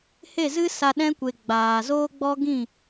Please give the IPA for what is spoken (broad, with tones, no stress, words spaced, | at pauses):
he˦˨zɨ˦ sa˧ɗɛ̃˦kʷe˨ ɡ͡baː˨ zoː˦ɡ͡bɔ˦ɡĩ˦˨